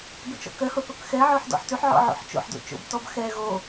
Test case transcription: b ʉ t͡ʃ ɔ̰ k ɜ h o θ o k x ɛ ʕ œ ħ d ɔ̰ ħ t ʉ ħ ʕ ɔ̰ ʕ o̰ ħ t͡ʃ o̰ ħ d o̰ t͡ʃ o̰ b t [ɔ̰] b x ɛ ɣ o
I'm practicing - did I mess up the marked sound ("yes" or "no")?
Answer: yes